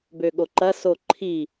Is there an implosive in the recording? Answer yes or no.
yes